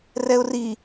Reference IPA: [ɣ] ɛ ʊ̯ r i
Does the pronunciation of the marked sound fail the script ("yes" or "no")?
yes